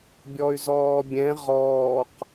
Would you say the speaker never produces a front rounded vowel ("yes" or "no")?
no